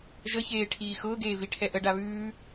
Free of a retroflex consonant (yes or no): no